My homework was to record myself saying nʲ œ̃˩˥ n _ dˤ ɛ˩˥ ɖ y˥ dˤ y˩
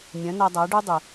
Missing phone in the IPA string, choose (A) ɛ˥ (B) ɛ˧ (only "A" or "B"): B